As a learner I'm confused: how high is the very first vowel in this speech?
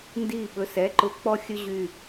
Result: high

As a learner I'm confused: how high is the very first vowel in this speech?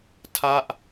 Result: low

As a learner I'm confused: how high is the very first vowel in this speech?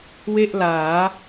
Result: mid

